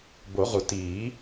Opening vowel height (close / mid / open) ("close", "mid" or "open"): mid